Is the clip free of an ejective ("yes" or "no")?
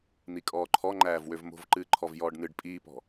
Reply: no